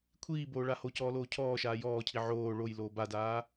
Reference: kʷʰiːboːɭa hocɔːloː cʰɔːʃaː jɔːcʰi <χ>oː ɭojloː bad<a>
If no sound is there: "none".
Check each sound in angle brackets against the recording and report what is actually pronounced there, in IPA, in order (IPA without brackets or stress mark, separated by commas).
ʕ, aː